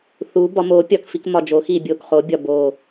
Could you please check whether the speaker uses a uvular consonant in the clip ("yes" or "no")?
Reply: yes